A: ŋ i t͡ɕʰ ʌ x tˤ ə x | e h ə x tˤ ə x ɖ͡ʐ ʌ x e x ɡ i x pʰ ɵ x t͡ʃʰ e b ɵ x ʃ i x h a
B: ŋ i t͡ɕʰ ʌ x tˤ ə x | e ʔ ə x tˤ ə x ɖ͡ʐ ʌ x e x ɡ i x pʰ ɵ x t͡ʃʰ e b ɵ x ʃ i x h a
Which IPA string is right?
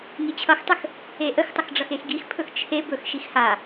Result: B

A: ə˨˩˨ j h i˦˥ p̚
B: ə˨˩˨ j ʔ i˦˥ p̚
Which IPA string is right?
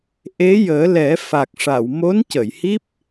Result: A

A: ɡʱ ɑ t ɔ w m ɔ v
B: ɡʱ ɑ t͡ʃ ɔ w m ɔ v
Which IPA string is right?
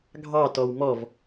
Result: A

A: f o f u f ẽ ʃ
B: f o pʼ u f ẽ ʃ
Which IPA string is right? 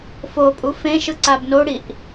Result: B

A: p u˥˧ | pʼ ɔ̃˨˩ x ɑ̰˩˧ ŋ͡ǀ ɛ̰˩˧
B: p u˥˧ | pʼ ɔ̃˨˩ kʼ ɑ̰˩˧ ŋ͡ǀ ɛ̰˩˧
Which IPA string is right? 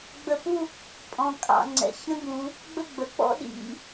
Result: B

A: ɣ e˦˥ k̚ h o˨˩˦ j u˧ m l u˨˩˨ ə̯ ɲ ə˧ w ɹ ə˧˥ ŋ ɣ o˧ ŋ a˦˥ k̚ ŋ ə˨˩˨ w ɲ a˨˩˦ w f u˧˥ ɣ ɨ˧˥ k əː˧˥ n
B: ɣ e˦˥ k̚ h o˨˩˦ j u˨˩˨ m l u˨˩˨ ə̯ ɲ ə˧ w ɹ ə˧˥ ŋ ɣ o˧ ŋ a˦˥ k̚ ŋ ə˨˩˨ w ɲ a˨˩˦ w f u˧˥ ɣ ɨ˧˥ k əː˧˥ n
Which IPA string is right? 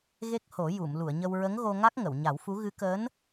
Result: B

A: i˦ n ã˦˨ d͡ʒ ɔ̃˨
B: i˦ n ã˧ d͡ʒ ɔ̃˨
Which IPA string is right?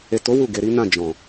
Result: A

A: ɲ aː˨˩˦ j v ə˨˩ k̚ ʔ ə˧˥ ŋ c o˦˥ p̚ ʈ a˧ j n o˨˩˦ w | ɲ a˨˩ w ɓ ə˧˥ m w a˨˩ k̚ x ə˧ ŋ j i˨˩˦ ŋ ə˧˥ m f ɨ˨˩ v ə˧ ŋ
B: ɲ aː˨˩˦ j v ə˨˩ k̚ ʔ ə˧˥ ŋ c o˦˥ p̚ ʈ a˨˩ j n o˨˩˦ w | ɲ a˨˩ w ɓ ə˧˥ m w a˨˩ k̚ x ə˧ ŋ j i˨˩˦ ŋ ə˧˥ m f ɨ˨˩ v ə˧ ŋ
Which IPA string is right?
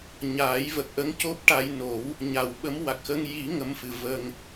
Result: A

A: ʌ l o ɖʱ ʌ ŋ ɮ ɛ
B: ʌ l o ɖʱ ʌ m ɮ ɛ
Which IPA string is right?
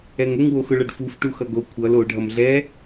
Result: B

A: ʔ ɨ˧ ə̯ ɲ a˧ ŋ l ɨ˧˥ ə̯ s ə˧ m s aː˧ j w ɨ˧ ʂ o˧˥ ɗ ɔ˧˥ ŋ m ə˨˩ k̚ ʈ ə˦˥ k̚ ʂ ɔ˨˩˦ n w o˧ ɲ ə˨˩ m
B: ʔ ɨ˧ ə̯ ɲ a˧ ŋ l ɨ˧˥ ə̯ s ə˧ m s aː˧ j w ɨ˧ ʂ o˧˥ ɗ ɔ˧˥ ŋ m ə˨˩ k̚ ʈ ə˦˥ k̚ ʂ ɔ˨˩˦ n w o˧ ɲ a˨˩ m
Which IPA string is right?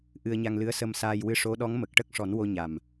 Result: B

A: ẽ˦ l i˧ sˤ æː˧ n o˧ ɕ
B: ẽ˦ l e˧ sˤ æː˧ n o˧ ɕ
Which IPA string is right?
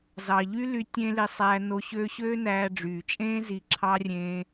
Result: A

